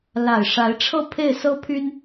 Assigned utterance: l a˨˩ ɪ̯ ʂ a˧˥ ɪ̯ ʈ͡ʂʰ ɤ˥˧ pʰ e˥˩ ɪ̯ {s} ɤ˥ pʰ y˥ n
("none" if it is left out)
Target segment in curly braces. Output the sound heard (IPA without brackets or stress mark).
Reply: s